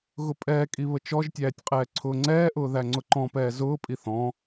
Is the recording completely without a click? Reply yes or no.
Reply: no